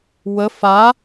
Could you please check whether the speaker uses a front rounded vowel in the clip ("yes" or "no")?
no